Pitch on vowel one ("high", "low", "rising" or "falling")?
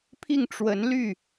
falling